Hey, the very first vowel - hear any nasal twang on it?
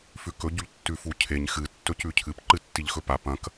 no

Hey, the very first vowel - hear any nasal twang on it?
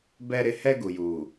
no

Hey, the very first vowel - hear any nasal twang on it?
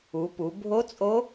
no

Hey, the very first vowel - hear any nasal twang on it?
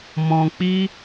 yes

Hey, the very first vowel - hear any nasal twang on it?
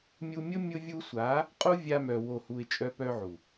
no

